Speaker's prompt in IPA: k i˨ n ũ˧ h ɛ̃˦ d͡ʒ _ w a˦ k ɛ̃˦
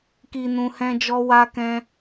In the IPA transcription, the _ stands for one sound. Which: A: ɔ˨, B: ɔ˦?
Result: B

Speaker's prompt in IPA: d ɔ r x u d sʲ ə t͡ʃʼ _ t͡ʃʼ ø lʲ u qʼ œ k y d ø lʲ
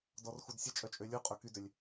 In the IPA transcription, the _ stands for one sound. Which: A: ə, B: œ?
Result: B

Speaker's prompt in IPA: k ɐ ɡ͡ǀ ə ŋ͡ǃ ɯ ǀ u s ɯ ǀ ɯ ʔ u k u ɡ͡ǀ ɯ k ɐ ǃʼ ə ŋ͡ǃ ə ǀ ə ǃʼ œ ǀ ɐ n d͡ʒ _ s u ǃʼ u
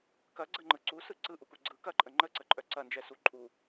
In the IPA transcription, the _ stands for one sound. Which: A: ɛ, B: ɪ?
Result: A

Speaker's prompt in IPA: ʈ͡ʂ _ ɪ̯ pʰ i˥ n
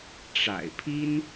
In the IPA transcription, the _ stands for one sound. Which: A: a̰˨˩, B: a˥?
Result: A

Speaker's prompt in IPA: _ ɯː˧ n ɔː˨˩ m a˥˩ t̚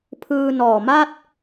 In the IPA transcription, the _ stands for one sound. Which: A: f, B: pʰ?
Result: B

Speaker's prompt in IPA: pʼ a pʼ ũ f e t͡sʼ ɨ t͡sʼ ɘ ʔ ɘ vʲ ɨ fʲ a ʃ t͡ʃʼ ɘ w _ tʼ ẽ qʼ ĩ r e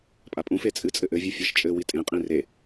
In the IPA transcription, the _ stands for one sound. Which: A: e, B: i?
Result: B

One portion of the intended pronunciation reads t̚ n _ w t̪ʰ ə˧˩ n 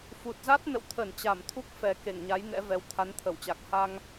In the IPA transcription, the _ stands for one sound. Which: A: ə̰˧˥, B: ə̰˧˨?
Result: B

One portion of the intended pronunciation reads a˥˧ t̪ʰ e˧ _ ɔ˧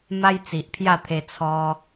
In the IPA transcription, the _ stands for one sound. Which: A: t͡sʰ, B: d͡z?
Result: A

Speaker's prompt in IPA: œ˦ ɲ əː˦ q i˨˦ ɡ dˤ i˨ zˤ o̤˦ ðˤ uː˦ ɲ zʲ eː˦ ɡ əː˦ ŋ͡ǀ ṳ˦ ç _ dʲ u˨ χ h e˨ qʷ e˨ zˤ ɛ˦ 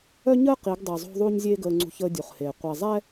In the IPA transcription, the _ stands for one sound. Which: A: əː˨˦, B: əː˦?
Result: B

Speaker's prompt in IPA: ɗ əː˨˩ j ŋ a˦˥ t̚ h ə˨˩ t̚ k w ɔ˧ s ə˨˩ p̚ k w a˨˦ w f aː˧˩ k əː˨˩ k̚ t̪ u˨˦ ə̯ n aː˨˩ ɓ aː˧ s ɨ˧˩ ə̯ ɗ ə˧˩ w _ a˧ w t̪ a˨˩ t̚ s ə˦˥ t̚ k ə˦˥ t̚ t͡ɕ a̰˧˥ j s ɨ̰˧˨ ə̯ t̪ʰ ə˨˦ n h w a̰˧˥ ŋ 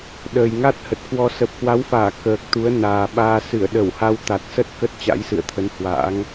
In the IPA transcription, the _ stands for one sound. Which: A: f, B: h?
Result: B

